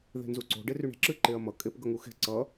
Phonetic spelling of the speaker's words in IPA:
ð e̤ n z u ǀ o̤ ɖ e r y ɳ e̤ ǁ ɨ ǃ e ɐ̯ m ʌ kʼ e p ɡ ʌ ŋ u x e̤ ǀ ʌ

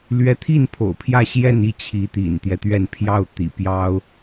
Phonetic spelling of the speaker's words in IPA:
l ɥ ɛ˧˥ t̪ʰ i˥˩ n pʰ o̰˨˩ ʊ̯ pʰ j ä˥˧ ɕ j ɛ˥˧ n i˥˩ t͡ɕʰ i˧˥ t̪ ḭ˨˩ n t̪ j ɛ˦ t̪ ɥ ɛ˥˧ n pʰ j ɑ˥˩ ʊ̯ t̪ ḭ˨˩ p j ɑ˥ ʊ̯

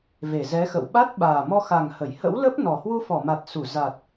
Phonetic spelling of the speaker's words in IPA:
v e˧˩ z ɛ˨˦ x ə̰˧˨ w ɓ a˦˥ t̚ ɓ aː˨˩ m ɔ˧ x a˨˩ ŋ h ə˧˩ j h ə̰˧˥ w l ə˦˥ p̚ n ɔ˨˩ h w u˧ f ɔ˧˩ m a˨˩ t̚ s u˧˩ z a˨˩ t̚

